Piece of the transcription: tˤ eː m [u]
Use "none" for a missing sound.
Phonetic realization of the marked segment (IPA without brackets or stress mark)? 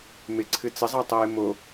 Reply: o